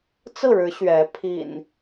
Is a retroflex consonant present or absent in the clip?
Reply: present